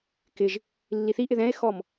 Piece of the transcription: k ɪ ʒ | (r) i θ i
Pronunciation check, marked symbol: incorrect: lː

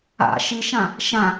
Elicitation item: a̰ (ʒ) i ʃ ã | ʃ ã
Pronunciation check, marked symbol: incorrect: ʃ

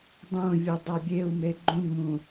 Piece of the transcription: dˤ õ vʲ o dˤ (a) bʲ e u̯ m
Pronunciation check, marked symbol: correct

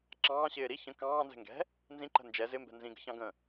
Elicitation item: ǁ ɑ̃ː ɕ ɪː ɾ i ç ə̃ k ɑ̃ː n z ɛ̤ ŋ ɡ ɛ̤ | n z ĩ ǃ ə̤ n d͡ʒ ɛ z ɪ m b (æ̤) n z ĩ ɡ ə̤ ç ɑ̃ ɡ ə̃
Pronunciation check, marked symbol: incorrect: ɛ̤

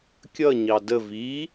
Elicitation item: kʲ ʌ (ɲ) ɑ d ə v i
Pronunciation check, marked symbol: correct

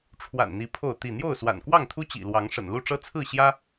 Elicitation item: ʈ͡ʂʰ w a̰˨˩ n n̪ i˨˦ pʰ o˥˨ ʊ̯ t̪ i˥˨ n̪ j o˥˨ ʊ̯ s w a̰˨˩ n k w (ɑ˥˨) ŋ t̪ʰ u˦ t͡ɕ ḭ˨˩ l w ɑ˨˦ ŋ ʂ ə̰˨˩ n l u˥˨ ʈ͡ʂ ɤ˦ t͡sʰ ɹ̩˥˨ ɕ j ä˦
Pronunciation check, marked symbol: correct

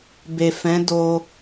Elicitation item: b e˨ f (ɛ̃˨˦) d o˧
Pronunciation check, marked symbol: correct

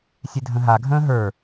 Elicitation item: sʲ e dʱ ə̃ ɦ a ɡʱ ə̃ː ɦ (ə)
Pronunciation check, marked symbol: incorrect: ə˞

